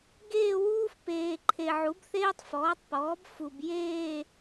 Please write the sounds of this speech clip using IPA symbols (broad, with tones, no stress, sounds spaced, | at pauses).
ɡ eː˥˧ w uː˥ f p eː˨ ǃʰ e˨ ʕ u˩˥ b θ eː˥ tˤ f ɔː˩˥ tˤ p ɔː˩˥ b f u˨ b j eː˥˧